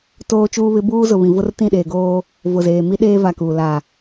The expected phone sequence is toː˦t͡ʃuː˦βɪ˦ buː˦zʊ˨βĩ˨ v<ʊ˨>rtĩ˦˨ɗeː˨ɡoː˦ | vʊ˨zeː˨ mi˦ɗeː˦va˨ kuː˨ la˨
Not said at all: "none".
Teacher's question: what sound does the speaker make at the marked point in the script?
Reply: ʊ˦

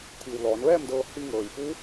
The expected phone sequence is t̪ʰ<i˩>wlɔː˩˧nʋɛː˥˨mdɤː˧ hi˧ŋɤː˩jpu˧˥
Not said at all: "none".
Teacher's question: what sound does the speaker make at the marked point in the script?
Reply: i˩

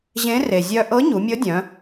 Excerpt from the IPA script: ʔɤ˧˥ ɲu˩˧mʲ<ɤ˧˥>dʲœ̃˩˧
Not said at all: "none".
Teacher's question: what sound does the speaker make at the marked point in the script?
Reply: ɤ˧˥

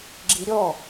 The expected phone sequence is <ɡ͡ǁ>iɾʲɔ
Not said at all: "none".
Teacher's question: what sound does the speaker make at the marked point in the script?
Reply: ɡ͡ǁ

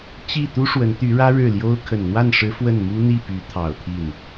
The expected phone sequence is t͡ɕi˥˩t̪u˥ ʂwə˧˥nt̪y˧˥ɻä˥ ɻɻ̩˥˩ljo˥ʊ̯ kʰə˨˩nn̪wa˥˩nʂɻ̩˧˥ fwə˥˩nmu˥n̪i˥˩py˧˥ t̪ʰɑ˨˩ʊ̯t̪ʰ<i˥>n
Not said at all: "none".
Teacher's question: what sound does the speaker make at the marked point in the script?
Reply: i˥˩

